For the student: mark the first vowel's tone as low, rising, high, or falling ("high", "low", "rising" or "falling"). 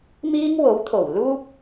high